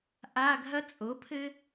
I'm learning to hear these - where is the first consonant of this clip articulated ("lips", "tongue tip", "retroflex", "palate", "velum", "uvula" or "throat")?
throat